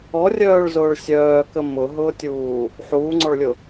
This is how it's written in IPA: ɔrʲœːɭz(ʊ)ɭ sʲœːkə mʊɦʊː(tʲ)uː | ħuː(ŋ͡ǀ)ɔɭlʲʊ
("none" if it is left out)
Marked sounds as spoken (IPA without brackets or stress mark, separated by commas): ʊː, tʲ, ŋ͡ǀ